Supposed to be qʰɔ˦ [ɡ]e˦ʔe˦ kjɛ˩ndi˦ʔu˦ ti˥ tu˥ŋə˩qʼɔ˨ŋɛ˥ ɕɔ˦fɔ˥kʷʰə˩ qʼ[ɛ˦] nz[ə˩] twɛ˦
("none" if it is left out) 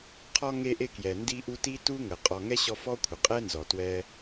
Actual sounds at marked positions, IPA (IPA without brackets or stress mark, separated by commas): ŋ, ɛ˥, ɔ˩